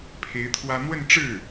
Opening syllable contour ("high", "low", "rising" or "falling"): rising